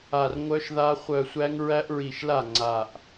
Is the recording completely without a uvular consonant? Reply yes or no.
no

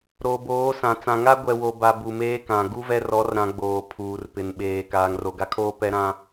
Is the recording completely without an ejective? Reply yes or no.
yes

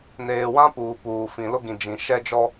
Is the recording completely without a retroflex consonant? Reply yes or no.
yes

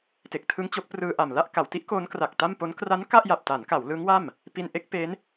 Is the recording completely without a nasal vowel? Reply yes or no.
yes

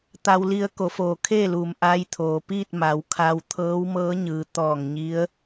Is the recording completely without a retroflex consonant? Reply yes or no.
yes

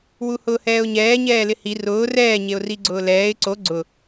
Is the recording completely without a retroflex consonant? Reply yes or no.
yes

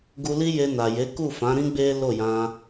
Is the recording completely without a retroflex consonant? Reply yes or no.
yes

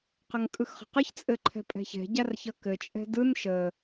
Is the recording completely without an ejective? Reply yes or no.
no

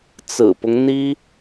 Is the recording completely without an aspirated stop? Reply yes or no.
yes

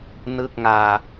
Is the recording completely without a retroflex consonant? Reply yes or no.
yes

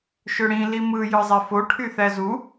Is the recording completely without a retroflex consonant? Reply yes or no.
no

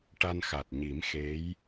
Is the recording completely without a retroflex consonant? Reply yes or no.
no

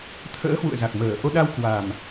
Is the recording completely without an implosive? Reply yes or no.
no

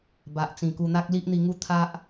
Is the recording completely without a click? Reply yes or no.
yes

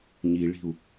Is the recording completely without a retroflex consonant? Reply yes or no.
no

